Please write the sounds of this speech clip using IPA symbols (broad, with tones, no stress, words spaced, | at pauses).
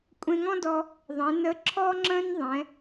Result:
kʷʼẽ˧ŋɔ̃˥dɔ˧ | ðˤẽ˩˧nə˧˥ ǁʰɔ˥ŋ͡ǁə̃˥n ðˤɛ̃˩˧